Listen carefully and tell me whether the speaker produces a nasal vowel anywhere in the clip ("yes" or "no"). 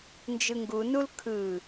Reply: no